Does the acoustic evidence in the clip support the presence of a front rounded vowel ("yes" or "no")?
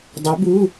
yes